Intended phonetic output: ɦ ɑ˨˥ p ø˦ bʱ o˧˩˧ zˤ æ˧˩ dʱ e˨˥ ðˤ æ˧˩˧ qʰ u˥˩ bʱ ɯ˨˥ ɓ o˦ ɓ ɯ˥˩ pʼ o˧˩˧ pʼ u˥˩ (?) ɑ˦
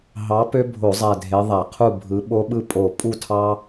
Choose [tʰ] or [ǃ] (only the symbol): tʰ